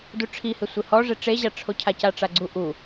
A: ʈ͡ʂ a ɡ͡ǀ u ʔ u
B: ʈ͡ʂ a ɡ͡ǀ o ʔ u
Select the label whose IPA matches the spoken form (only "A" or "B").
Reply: A